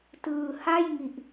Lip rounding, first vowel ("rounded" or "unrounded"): unrounded